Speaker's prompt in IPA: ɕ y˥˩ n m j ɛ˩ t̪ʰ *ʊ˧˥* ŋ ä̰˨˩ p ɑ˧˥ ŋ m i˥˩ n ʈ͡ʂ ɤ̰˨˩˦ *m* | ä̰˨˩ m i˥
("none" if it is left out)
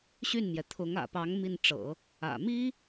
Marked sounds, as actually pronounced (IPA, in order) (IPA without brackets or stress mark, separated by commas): ʊ˧˥, none